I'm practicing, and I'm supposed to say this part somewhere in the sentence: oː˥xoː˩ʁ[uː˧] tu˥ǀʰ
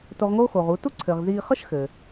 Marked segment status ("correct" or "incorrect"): correct